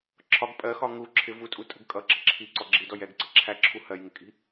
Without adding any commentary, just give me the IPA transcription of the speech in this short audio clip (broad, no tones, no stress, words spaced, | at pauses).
ǁʰɒɡ pʼɜxɒ ŋu ǁʰɪ vutʼutʼə̤ɡ kʼʌǁə ǁʰiǀɔ ɡ͡ǁidɔj ɛɡǀʌ ǁʰæǁʰu hɜjŋɪkʼi̤